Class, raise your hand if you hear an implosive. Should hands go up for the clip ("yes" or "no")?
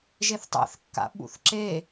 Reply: yes